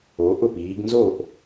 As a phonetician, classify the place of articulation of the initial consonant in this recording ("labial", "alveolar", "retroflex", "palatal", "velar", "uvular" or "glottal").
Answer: glottal